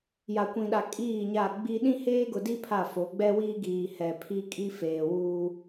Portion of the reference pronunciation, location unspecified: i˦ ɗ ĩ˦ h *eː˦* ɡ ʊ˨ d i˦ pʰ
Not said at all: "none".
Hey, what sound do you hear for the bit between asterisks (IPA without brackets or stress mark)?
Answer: eː˦